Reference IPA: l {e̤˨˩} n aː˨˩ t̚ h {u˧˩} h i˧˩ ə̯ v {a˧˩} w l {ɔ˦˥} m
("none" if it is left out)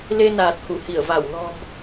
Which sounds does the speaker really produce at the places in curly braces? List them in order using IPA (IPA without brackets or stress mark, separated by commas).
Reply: e˧, u˧˩, a˧˩, ɔ̤˨˩